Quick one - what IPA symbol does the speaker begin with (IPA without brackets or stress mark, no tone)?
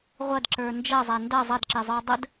ʁʷ